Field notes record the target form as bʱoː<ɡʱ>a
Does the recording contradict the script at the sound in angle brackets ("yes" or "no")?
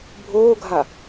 no